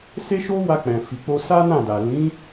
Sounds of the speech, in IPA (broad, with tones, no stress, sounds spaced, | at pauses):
s e˦ ʃ o˦ w a˧ k͡p ɛ̃˨ f i˨ k͡p o˧ s a˦ n ã˦˨ d a˨ l ĩ˨˦